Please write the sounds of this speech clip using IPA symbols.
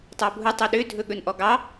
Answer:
tˤɑbʱu tˤuɗø dʱɵɠɵnʔɔɡɑ

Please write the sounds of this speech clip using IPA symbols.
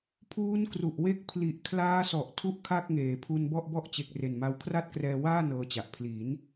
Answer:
pʰuː˦˥nkru˨˩ʔwe˦˥k̚ pʰli˨˩ʔ kʰlaː˦˥sɔ˨˩ʔ tʰu˥˩ʔkʰa˥˩k̚ŋeː˨˩ pʰu˧nbɔ˥˩ʔbɔ˥˩ʔ t͡ɕe˨˩k̚re˨˩nma˧w kʰra˥˩t̚krɛː˧waː˥˩ nɤː˧t͡ɕa˨˩ʔ pʰliː˩˦n

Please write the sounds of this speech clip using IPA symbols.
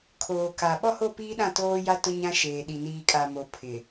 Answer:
kʰoː˨ka˨ ɓɔ˦ho˦˨piː˦ɗã˦˨ toː˦ja˦ tʊ˦ɲã˦ʃeː˨ɗi˨ niː˨kʼa˨mo˨ pʰɪ˨

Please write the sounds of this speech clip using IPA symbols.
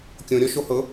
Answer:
kʲõɾʲɔ ʃohɤ

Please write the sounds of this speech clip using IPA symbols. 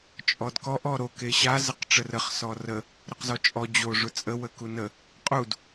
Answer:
t͡ʃʼɔdkɔʔ ɔɾo keɕa zəqʈ͡ʂərəχ sɔrə | ɾʊqzɔt͡ʃʼɔ d͡ʑo ʐʊt͡sʼə wəkunə | qʼud

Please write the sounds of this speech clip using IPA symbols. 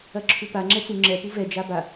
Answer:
ɐǁʰupa ŋ͡ǁɛt͡su ŋ͡ǁɛ puvɛ d͡ʒaba

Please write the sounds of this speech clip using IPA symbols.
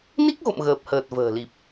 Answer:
ni˦˥k̚ɣo̰˧˨m ɣəː˨˩p̚həː˨˩t̚və̤ː˨˩li˨˩p̚

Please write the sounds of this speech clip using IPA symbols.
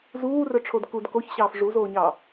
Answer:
zuːrœʈ͡ʂʰod kud koçɕɑːf ʐuzoːɲɑ

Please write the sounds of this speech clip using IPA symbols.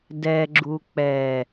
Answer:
dɛ ɡ͡ǁuk͡pɛ

